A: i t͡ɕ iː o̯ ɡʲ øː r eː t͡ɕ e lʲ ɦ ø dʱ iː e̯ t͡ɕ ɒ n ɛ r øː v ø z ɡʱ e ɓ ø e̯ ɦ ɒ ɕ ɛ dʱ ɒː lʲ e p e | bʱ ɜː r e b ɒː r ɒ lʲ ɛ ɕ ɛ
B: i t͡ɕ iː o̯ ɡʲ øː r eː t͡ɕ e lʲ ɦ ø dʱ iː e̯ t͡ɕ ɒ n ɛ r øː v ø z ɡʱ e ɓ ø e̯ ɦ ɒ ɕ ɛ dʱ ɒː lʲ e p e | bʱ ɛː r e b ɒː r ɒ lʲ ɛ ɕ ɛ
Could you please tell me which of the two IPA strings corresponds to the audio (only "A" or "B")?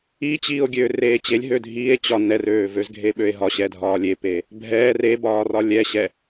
B